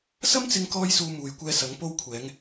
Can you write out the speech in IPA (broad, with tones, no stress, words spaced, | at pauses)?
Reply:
sɐ˥mt͡sɪ˧ŋkɔː˧jsuː˨ muː˨jkʷɛː˧sɐ˨˥ŋ po˧wkʷʰɛː˨˧ŋ